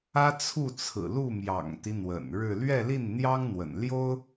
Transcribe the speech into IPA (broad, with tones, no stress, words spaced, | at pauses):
ä˥t͡sʰu˥˩t͡sʰɹ̩˨˩ lu˥˩mjɑ̰˨˩ŋt̪i˦ n̪wə̰˨˩nɻɻ̩˥˧ lɥɛ˥˧li˥˩n n̪jɑ˥ŋn̪wə̰˨˩n ljo˥ʊ̯